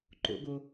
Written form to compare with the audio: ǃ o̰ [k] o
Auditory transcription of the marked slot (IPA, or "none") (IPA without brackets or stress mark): ɡ